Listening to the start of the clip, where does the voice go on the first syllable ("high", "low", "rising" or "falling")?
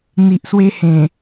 low